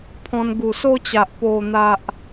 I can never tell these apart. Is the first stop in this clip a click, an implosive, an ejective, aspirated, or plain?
aspirated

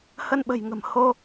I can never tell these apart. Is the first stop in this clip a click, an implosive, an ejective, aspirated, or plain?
implosive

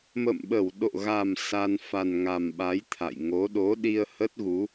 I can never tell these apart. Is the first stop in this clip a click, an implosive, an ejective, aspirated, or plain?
implosive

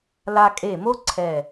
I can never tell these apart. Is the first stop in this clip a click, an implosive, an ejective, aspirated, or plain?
ejective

